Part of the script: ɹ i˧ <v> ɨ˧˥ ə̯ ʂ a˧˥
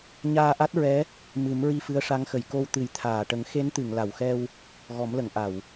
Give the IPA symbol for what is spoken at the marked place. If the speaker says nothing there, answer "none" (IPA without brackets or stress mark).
f